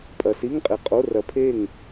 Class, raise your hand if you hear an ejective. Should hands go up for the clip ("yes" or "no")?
yes